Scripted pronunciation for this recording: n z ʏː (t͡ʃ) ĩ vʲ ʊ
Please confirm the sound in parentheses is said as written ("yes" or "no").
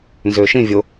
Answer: no